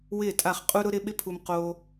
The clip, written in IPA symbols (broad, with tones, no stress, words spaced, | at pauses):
wɪː˦˨tʼa˦˨χ qʼu˧ɾʊ˧ɾɪ˧ ɓɪ˦pʰu˧m qoː˧